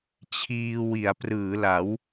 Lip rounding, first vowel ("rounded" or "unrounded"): unrounded